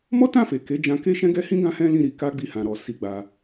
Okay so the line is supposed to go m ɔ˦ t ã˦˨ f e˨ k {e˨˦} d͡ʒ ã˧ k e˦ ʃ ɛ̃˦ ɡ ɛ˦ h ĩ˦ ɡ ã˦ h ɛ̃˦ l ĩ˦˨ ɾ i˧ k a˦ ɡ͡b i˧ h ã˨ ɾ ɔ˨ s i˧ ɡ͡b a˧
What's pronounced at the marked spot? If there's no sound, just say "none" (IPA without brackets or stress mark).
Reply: e˨˦